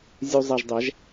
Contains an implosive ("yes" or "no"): no